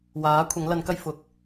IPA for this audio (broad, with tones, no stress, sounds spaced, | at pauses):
w aː˨˥ kʷʰ ɐ˨˥ ŋ l ɐ˨˥ n k ɐ˥ j f ʊ˨ k̚